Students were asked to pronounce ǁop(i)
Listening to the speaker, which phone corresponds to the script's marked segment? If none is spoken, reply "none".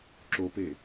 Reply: e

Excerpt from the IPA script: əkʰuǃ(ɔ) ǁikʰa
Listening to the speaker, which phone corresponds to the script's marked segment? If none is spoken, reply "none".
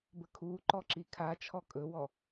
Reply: ɔ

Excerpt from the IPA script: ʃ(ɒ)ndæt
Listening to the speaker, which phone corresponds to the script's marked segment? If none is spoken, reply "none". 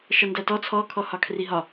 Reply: ɒ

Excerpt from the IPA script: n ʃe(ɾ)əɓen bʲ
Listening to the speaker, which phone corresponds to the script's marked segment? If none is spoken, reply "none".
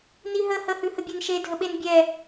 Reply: dʱ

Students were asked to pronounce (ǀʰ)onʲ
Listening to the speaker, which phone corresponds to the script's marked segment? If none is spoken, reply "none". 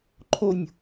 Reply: ǃʰ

